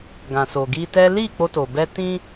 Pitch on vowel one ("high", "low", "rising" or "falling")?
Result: low